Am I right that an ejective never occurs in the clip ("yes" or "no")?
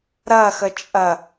no